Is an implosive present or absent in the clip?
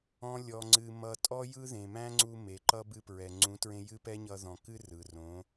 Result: absent